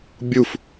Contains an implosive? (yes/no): no